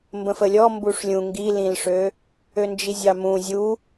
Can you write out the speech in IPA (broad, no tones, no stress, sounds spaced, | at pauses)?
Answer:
m b ə̃ f ə lʲ ɔ m b u ʂ lʲ ũ ŋ ɡ i l ĩ l ʂ ø | ø n d͡ʒ i zʲ ɑ m ũ zʲ u